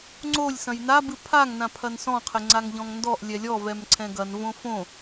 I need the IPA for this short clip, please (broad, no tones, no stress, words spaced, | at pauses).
ŋ͡ǀolʲ sɐ̃jnabɨ pʰaŋnã pʰɐnsɔ̃qʰɘ ŋ͡ǀaŋʎɔ̃ŋndɔʔlʲɛ lʲɔvɛm ǀʰɛ̃ɡɐnvõ fõ